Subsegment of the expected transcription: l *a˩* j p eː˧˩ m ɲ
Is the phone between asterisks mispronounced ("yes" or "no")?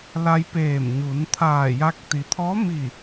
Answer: yes